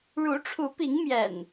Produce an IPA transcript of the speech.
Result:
ɻ u˨˦ ʈ͡ʂʰ u˨˦ p i˨˦ ŋ m j ɛ̰˨˩ n

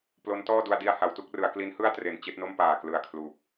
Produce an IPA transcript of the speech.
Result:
p l o˦˥ n t ɔː˥˩ d u˧ a̯ d i˧ a̯ h a˩˦ w t u˥˩ k̚ r ɯ˩˦ a̯ k l i˦˥ n h ɯ˥˩ a̯ t r e˨˩ n t͡ɕ e˥˩ ʔ n o˥˩ m p aː˨˩ k l ɯ˨˩ a̯ kʰ l uː˨˩ p̚

